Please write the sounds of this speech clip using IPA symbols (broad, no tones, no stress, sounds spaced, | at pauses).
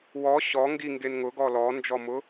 w ɔ ɕ ɔ ŋ ɡ i ŋ ɡ e n ŋ ʊ ɡ ɔ l ɔ n d͡ʒ ɔ m ʊ